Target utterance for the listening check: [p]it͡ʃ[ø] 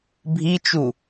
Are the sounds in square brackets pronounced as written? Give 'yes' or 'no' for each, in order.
no, no

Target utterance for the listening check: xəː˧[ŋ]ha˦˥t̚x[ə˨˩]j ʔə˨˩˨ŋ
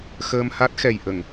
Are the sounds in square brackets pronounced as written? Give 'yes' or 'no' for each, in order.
no, no

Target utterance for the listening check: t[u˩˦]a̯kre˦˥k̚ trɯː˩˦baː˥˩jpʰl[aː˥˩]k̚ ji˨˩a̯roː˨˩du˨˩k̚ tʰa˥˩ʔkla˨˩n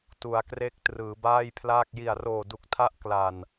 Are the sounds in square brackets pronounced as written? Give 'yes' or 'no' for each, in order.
yes, yes

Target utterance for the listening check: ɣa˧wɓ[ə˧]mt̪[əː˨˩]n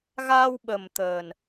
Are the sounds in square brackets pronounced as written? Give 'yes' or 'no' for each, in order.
no, yes

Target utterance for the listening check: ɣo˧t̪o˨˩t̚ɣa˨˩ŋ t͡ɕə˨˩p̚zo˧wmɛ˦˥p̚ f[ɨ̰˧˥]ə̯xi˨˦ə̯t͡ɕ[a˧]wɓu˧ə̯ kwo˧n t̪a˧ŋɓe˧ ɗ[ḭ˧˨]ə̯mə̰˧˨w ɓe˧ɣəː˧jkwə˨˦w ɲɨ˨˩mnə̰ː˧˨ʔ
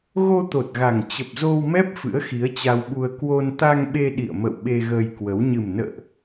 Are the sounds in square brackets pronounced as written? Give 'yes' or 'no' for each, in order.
yes, yes, yes

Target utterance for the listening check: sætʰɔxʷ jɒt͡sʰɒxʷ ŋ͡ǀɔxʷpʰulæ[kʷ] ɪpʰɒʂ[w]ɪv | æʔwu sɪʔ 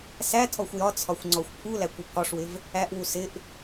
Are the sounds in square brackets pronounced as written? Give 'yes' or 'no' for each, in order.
yes, yes

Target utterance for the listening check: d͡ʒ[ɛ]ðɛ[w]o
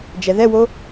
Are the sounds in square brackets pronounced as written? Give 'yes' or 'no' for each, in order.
yes, yes

